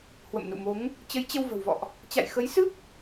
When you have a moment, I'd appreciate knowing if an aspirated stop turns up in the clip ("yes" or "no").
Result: no